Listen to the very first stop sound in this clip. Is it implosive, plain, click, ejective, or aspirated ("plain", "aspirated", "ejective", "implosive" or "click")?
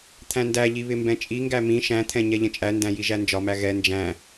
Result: aspirated